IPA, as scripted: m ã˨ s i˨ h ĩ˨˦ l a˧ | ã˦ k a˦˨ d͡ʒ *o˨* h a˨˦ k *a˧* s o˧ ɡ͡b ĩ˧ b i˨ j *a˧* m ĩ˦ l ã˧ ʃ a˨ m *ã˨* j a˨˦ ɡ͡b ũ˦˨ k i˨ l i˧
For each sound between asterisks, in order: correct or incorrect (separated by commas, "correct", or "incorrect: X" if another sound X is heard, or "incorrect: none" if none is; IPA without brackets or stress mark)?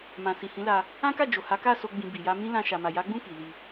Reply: correct, incorrect: a˦˨, correct, incorrect: a˨